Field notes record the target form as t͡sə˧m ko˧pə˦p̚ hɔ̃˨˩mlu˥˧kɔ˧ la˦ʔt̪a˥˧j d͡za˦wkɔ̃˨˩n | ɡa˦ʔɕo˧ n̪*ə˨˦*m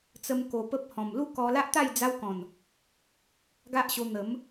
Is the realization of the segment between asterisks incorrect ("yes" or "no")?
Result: no